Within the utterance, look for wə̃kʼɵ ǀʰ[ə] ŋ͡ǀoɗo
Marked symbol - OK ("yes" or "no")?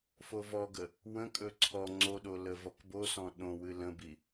no